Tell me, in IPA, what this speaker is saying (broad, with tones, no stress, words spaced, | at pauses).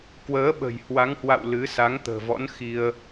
kwəː˨˦ɓə̤˨˩j hwa˨˦ŋhwa̰˧˨w lɨ˨˦ sa˨˦ŋt̪ə̤ː˨˩vɔ̰˧˥n xi˧ə̯